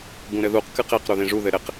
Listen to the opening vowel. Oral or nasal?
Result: nasal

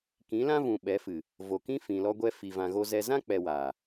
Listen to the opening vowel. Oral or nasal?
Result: nasal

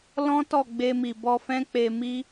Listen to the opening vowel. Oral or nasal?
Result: nasal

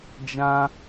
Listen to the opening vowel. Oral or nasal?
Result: nasal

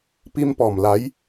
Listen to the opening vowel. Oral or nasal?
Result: oral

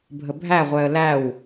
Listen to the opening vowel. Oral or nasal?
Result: oral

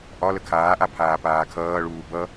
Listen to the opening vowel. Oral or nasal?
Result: oral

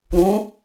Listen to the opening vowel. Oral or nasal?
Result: nasal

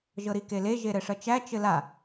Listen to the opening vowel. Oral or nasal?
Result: oral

